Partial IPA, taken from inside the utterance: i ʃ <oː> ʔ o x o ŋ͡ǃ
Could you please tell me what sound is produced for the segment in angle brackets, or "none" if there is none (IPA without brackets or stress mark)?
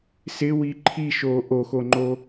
oː